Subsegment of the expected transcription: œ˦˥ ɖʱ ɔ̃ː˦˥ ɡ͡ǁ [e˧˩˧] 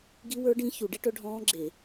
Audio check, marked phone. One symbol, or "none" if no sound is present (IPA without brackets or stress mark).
e˧˩˧